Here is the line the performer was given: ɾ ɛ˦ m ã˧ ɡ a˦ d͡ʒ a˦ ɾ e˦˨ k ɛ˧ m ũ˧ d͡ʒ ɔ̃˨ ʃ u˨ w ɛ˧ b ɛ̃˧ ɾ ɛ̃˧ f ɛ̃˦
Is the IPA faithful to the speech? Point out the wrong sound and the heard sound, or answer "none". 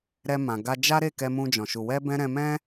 f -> m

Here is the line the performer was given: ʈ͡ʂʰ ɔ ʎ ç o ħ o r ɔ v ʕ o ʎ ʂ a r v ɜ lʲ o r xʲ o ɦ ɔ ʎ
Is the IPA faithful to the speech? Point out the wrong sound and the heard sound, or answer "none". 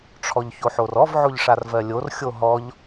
none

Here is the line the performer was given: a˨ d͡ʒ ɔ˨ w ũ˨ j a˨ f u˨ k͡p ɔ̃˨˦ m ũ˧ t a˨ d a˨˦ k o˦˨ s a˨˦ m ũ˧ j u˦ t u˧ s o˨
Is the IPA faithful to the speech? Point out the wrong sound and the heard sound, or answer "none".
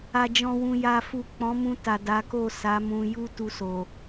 ɔ˨ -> ɔ̃˨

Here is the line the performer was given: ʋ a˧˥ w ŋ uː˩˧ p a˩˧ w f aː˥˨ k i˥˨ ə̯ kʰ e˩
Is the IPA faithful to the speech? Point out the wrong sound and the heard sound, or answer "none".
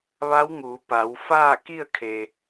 none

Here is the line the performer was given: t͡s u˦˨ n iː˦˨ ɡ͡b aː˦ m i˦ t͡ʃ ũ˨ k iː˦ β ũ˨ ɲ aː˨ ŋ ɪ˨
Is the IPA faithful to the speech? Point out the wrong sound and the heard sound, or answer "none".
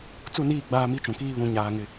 none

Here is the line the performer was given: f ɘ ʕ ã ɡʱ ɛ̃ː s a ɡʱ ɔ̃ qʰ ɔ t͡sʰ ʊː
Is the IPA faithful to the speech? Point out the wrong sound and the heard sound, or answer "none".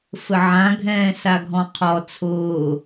none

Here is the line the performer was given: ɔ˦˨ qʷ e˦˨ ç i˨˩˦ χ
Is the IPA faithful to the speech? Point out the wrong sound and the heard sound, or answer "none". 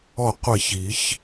χ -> ç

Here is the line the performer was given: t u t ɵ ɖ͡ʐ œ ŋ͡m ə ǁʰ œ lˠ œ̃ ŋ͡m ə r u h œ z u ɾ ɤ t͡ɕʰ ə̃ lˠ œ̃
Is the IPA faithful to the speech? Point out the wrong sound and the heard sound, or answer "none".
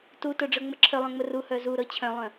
ə̃ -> œ̃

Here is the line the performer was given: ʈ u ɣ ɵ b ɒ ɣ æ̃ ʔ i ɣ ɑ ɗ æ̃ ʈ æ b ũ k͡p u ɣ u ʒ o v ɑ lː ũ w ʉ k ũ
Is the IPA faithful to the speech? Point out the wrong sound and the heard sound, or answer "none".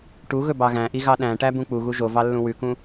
ɒ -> ɑ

